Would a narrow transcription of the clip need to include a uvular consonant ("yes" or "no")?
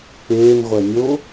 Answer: yes